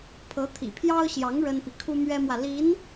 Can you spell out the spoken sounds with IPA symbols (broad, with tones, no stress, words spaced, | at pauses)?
pʰɤ˧˥t̪ʰḭ˨˩pʰjɑ˥ʊ̯ɕjɑ˧˥ŋ ɻə˥npi˨ kʰu˥mɥɛ˥mwä˨ li˧˥n